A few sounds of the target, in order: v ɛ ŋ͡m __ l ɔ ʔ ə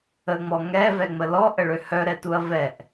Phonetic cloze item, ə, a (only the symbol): ə